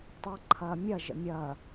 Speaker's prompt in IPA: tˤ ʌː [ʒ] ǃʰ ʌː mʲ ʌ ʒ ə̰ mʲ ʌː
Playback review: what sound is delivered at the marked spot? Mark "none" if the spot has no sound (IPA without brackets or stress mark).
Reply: none